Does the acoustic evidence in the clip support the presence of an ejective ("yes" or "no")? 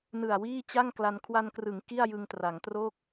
no